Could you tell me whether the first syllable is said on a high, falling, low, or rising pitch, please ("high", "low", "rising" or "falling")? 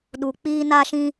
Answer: low